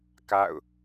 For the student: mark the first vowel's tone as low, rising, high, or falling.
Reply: falling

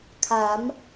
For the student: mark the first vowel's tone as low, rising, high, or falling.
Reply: rising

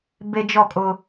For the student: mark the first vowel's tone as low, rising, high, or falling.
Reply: high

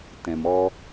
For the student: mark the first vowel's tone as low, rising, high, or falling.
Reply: low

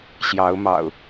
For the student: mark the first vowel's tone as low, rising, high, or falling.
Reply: rising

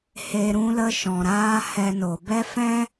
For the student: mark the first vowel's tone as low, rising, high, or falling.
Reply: low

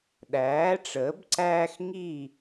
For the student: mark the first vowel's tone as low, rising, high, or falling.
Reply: rising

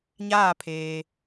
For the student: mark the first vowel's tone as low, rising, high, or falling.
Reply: falling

